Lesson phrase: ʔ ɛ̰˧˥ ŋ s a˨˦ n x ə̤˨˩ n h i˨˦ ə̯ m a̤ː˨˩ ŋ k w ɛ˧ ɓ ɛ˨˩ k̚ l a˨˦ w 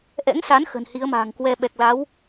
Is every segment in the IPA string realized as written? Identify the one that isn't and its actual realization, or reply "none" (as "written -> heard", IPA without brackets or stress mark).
none